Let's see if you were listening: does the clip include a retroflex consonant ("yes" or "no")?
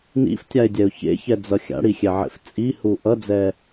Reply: yes